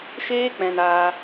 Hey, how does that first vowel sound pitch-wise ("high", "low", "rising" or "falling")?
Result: high